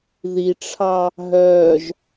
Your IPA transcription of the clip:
ð i ʈ͡ʂʰ ɑ | ɦ œː ʒ

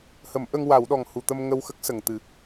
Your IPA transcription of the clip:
h ə˨˩˦ m ʔ ə˧ ŋ w a˨˩˦ w ɗ ɔ˨˩ ŋ h u˨˩ t̪ ə˧ m ŋ ə˧ w x ə˦˥ k̚ s ə˨˩ ŋ t̪ ɨ˨˩˦

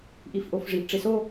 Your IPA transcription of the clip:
ʔ i f ʔ o f ʐ i ʔ ʈ͡ʂ e s o

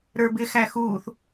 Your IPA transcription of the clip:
ɾ ə˞ b ɪ x æ x uː θ

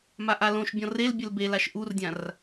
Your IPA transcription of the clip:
m a ʔ a l õ ʃ bʲ ɔ̃ r e l bʲ ɘ l b e l a ʃ ʔ u r dʲ ã r

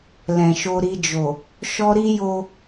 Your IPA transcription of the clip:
l ɛ̃˨ ʃ o˧ ɾ i˧ d͡ʒ o˨ | ʃ ɔ˦ ɾ i˦ j o˦

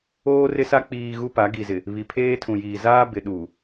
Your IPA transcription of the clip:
oː˦ r ɪ˦ s a˦ k͡p iː˨ ɣ u˦ p a˨˦ ɡ i˨ z ɪ˨ | β i˨ pʰ eː˦ tʰ ũ˨ j iː˨ z aː˦ b ɪ˨ ɗ u˨

